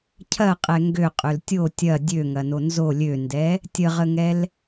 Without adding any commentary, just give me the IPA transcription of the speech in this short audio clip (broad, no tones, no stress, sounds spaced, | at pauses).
cʰ ɐ qʼ ɛ ŋ ɡ ø qʼ ø l tʲ o tʲ ɐ dʲ ø ŋ ɐ n o n z o lʲ ø n d ɛ | tʲ ə ʁ ə ŋ ɛ l